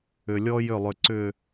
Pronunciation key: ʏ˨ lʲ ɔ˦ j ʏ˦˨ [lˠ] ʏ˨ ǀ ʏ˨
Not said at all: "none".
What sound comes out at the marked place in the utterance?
lˠ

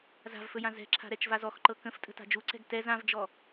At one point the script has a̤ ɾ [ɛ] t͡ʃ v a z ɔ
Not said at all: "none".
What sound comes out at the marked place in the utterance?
ɛ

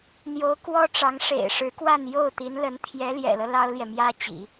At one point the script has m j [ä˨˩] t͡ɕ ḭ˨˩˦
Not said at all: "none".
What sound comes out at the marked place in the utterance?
ä˥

